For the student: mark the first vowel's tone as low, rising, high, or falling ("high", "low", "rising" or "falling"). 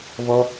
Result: high